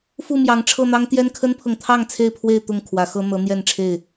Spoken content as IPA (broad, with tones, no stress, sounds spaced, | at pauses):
f u˥˨ m j ɑ˨˦ ŋ ʈ͡ʂʰ ɤ˥˨ n̪ ɑ˦ ŋ t̪ j ɛ˦ n kʰ ə˦ n pʰ ɤ˨ ŋ t̪ʰ ɑ˥˨ ŋ t͡sʰ e˥˨ ɪ̯ pʰ w e˥˨ ɪ̯ t̪ ʊ˥˨ ŋ kʰ w ä˨˦ x ɤ˦ n̪ ɤ˨˦ n̪ j ɛ˥˨ n ʈ͡ʂʰ e˥˨ ɪ̯